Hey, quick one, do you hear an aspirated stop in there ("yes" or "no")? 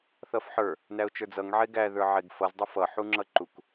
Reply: no